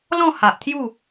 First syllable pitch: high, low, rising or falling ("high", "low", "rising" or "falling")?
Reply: falling